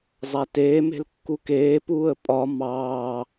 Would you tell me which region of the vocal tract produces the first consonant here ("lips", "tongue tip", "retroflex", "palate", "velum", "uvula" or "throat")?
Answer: tongue tip